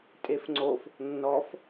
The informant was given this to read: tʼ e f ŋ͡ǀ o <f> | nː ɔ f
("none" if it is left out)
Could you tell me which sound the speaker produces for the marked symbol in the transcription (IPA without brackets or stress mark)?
f